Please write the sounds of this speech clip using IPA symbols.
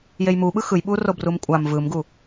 jejmuɓɯ xɯjɓu robrumkʷʼam vɯmɡu

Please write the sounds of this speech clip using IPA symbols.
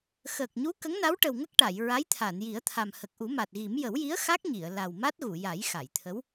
xəː˨˩k̚ɲu˧˥ kə˧˥ŋna˧˥wʈə˨˩wŋə˦˥k̚ ʈa˨˩˨j ɹa˧˥jt̪ʰa˨˩˨nji˨˩˦ə̯t̪ʰa˨˩m hə˨˩k̚ʔu˨˩˦ma˨˩t̚ɣi˨˩˦m jə˨˩˦wji˧˥ə̯ xa˦˥k̚ɲi˨˩˨ə̯ la˨˩wma˦˥t̚ ɣu˨˩˨ja˨˩˦j xa˨˩˨jt̪ʰə˧˥w

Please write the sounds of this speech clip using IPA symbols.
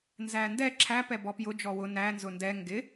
nzændɛ ǁʰæ pɛbɔpjʊ d͡ʒɔwʊ næ nzʊndɛ ŋɡɪ

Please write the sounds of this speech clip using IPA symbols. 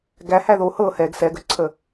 ɡæhæ ðo hɤ hɛɡ sɛɡəǀʰə

